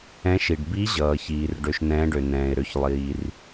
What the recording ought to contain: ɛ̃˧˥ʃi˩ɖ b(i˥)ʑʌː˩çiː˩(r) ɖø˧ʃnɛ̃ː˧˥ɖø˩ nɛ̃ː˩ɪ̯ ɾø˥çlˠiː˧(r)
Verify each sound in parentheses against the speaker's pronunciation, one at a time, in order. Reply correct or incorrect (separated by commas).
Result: incorrect, correct, correct